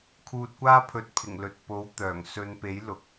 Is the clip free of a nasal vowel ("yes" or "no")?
yes